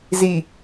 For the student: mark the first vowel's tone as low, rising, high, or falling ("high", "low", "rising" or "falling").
low